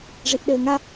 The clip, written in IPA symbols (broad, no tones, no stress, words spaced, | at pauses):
ʐiʔɗɘːŋa